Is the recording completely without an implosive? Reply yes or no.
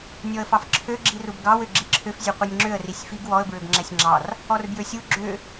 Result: yes